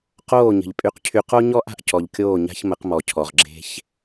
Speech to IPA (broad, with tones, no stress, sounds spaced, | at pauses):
q oː˦˨ ɲ ə̤˨ ʎ pʼ y˨ q cʰ y˨ q o˦ ɲ ɔ˦ ʔ a̤˨ ʔ c ɔ˨ ʎ kʲ oː˦˨ ɲ a̤˦ ç m ə˨˦ q m ɔ˨ cʰ ɔ˨ ʁ ɡ͡ǁ e̤˦ ç